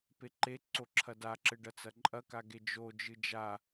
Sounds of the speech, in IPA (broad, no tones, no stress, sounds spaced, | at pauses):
p e ǃ e ǀ o ǁʰ ɐ d a ǁ ɘ ɖ ɐ t͡s ɐ ǃʼ ɐ k a ɡ e d͡ʒ o d͡ʒ ɨ d͡ʒ a